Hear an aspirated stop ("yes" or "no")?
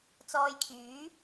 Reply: yes